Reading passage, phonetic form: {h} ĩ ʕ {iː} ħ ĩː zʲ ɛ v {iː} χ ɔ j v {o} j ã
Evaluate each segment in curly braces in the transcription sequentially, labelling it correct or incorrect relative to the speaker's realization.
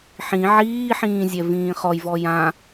incorrect: ħ, correct, incorrect: ĩː, incorrect: ɔ

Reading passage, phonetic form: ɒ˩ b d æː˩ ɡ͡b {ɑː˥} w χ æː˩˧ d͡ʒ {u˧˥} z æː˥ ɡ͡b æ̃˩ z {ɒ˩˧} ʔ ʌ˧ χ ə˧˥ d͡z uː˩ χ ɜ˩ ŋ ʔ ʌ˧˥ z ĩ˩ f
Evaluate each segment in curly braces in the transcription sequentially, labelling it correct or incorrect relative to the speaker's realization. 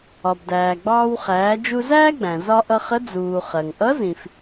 incorrect: ɑː˧, incorrect: u˧, incorrect: ɒ˧

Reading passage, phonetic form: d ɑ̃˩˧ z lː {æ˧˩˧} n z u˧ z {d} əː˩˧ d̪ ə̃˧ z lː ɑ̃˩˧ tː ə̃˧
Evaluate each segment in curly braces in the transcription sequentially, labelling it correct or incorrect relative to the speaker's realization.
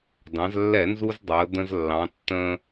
incorrect: ɛ˧˩˧, incorrect: dˤ

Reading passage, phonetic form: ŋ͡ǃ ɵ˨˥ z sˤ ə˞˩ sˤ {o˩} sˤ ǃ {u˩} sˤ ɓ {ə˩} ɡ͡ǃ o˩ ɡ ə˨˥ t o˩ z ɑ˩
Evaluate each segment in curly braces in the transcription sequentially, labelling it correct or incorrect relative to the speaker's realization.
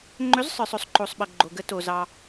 incorrect: ɵ˩, incorrect: o˩, correct

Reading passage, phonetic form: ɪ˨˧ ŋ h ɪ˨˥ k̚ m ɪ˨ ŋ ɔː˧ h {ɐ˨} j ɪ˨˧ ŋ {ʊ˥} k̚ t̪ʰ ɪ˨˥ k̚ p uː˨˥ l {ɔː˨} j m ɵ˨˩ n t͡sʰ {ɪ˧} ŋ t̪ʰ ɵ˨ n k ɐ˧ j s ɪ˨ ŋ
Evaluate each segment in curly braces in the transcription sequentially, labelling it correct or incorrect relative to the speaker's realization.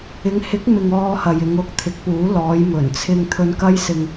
correct, incorrect: ʊ˧, incorrect: ɔː˨˧, correct

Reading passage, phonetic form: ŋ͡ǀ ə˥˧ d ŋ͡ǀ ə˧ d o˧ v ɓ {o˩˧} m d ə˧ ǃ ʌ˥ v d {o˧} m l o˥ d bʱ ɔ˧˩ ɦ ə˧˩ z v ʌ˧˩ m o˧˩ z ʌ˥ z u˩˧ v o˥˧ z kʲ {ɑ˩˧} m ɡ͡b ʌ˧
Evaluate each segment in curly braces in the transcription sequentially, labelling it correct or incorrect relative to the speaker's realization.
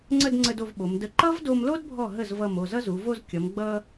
correct, correct, incorrect: ʌ˩˧

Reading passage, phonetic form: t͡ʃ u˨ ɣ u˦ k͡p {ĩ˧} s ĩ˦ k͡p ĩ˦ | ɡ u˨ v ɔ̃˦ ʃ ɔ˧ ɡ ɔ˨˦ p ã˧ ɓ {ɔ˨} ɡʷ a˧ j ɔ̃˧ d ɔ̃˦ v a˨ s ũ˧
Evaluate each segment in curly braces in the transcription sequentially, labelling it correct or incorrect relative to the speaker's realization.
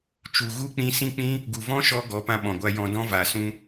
correct, incorrect: ɔ̃˨

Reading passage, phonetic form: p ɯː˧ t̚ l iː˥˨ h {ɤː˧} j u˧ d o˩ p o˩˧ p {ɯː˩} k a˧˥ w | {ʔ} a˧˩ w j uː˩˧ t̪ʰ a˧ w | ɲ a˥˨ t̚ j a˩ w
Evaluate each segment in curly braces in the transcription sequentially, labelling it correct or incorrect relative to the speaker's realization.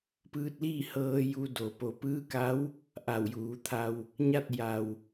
correct, incorrect: ɯː˧˥, correct

